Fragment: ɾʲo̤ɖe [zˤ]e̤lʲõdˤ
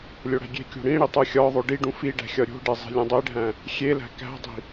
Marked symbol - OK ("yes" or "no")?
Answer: yes